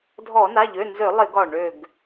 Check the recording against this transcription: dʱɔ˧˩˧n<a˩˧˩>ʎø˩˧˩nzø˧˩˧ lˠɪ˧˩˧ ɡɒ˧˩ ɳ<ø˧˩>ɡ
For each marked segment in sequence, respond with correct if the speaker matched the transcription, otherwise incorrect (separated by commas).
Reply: correct, correct